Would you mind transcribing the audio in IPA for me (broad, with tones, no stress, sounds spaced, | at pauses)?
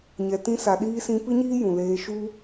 ɲ ɛ˨ t ĩ˧ s a˨ ɗ iː˧ s ĩ˧ p ɨ˦ ɲ iː˦ j ũ˨ l eː˧ ʃ u˦